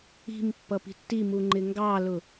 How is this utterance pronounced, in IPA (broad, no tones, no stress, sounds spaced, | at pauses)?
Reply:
i̤ m pː ʌ p i̤ tː i m u ŋ͡ǃ ɪ ŋ ɡ ɑ l ʊ